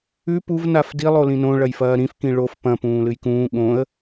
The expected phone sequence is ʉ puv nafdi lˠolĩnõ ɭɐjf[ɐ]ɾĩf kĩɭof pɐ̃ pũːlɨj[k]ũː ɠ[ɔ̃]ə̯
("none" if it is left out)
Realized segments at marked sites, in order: ɐː, k, õ

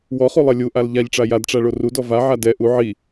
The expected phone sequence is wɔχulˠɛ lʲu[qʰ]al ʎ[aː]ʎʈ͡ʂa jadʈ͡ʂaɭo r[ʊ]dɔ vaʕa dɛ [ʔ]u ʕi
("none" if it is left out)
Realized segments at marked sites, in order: ʔ, a, u, ʔ

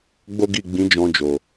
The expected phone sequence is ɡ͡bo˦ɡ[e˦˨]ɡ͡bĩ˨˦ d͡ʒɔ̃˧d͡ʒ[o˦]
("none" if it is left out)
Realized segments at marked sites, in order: i˦˨, o˨

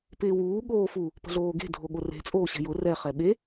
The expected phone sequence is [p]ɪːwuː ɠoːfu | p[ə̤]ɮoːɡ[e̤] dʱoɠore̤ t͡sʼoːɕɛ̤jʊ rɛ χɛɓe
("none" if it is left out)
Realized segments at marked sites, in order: p, ə̤, e̤

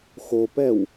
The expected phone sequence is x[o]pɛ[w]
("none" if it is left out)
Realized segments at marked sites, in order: o, w

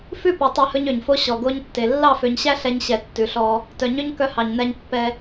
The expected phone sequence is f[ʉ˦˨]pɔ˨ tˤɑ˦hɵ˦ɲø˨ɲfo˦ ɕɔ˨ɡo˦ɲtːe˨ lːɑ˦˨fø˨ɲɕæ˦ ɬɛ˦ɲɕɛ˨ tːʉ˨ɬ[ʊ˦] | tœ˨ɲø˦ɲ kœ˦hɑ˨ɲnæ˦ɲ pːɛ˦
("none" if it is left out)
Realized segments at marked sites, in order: ʉ˦˨, ɔ˦

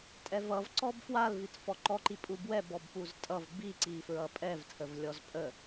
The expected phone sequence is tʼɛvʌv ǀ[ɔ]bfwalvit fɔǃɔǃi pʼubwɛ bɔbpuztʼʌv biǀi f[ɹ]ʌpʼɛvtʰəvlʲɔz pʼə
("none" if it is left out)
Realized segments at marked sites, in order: ɔ, ɹ

